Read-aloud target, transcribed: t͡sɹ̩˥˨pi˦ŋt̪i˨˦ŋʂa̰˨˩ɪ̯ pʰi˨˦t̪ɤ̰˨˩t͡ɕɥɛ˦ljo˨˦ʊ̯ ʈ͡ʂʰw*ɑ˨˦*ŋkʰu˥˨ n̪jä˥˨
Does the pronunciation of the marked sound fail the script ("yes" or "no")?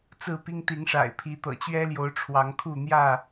no